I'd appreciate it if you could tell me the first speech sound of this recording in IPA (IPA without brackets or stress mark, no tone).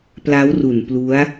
p